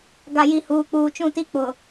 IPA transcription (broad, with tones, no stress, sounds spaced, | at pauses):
ɡ a˨ j i˨ h uː˨ k͡p uː˨ t͡ʃ ũ˦˨ t i˦ k͡p ʊ˨